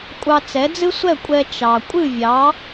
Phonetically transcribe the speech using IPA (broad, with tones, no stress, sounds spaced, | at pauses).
kʷʼ ɑ˧ t͡s ɛ˩˥ d͡z ɨ˥ sʷ ɛ˥˩ kʷʼ ɛ˧ t͡ʃ ɑ˩ kʷʼ ɨ˥˩ vʲ ɑ˩˥